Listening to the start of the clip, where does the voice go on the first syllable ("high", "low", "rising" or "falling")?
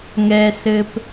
low